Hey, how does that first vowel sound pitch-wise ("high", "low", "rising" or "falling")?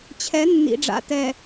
rising